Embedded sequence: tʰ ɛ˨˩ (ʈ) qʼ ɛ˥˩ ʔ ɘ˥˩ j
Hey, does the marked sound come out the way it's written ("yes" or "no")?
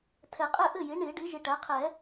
no